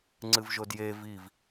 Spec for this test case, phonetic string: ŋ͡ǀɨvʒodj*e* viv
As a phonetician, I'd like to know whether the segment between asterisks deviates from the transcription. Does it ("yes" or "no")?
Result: no